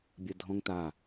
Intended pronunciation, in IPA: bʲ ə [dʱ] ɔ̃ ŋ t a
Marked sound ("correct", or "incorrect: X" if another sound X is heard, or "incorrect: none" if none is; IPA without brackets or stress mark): correct